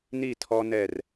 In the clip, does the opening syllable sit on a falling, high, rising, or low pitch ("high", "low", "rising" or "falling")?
falling